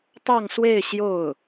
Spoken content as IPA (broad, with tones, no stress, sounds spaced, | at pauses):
t̪ ɑ˥˧ ŋ s w e˥˧ ɪ̯ ɕ j o˥˩ ʊ̯